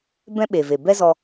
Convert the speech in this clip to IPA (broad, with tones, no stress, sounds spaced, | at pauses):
b ɛ̃˦ ɓ e˨ v e˨ b ɛ˦ z ɔ˧